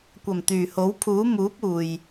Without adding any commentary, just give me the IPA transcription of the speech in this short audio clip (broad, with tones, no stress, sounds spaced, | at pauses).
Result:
kʷ ɐ˨˩ m t̪ yː˨˩ h o˨˥ w pʰ uː˨˥ m uː˨˥ p̚ uː˨ j